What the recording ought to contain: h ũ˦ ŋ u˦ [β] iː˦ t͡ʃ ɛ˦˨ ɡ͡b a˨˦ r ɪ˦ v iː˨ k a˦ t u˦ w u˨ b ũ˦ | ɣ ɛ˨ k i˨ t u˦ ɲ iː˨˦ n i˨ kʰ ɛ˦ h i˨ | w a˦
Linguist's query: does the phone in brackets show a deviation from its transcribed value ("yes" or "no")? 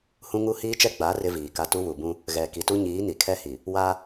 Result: yes